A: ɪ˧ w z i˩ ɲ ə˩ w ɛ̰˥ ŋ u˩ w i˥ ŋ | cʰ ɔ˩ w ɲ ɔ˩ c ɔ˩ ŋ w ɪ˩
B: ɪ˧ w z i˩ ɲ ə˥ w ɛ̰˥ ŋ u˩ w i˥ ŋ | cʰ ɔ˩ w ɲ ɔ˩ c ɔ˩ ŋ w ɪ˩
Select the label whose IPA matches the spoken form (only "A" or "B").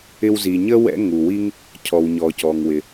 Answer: B